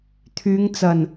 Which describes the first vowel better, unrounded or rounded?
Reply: rounded